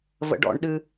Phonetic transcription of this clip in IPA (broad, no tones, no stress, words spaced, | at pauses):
və̰ɖɔ̰ɳɗɨ